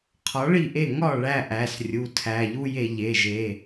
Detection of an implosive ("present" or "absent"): absent